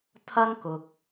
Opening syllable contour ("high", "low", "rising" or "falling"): high